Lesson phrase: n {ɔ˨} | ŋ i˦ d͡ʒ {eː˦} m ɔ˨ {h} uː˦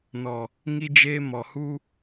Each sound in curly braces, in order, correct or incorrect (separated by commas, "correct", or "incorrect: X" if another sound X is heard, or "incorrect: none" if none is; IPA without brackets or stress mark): correct, correct, correct